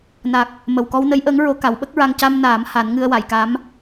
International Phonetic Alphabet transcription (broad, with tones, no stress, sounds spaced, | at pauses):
n a˨˩ k̚ | m ə˨˩ w k ɔ˧ w n ə˧˥ j ʔ əː˧˥ ŋ ɹ o˧ k a˨˩˦ w ɓ ə˦˥ k̚ ɹ a˧ ŋ c a˧ m n aː˨˩˦ m h a˨˩˦ n ŋ ɨ˧ ə̯ w a˨˩˨ j k a˧˥ m